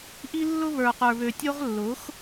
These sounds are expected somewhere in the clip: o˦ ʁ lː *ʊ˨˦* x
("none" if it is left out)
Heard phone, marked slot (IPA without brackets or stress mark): ʊ˨˦